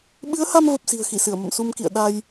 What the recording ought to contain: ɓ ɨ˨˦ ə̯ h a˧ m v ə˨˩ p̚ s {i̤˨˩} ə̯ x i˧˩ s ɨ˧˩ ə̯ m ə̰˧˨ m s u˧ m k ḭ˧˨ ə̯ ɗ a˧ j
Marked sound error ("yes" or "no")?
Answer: no